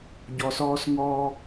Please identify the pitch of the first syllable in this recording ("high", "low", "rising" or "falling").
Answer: low